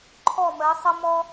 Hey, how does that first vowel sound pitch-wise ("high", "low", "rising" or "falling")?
falling